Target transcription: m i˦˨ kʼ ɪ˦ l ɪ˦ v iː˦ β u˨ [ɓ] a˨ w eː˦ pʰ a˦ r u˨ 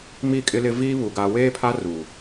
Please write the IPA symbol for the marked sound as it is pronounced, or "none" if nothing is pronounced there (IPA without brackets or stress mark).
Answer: ɡ